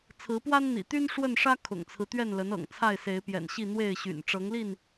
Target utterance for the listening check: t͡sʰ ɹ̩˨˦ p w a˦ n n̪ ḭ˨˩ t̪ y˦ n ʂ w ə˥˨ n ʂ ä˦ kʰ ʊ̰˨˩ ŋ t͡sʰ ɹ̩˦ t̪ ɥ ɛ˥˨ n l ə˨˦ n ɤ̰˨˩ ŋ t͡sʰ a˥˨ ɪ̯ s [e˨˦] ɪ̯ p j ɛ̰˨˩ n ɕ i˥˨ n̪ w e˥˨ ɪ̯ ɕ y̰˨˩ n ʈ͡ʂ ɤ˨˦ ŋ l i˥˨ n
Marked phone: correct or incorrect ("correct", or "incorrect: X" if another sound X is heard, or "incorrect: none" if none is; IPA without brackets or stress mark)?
correct